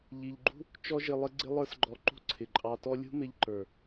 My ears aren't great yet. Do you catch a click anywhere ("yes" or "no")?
yes